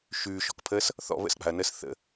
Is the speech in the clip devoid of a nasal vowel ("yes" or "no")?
yes